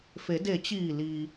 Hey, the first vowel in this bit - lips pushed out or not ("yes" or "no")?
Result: no